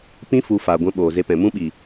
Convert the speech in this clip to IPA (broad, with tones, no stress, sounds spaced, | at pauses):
p ĩ˧ f u˨ f aː˨ ɡʷ ɛ̃˦ ɓ oː˨ z e˧ p ɛ̃˨ m ũ˦ ɓ i˨